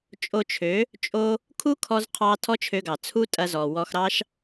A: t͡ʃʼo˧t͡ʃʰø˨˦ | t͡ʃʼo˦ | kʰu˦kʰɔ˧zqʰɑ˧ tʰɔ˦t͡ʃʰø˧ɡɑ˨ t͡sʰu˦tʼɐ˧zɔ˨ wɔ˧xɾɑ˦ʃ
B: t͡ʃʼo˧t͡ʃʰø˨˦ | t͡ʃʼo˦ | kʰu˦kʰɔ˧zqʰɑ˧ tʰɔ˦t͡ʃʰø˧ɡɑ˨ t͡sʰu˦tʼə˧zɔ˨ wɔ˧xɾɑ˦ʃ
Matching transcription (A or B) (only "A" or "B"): A